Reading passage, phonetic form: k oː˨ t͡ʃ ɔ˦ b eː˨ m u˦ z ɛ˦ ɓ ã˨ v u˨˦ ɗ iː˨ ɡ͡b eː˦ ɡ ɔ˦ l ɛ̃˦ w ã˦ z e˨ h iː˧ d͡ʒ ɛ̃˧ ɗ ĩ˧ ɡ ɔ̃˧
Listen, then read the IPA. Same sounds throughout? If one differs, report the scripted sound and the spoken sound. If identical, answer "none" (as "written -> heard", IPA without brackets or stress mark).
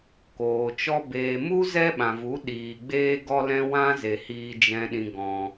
none